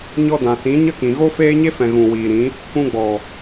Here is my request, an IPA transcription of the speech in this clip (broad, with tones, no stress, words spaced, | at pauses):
ɲɔ˧ dã˨sĩ˨˦ ɲə˦kĩ˨ ɣo˦feː˦ɲe˦fɛ̃˨ ɣũ˨wiː˨ɾĩ˨˦ | kũ˧ɡ͡bɔ˨